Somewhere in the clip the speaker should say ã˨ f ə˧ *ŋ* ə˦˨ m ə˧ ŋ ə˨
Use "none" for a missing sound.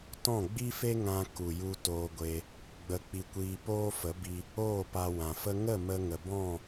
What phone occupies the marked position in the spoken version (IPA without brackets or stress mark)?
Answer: ŋ